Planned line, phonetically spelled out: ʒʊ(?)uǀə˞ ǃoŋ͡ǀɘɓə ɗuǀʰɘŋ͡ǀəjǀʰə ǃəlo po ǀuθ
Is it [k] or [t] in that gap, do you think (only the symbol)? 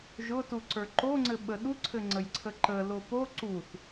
t